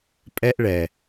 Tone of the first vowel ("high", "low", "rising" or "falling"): high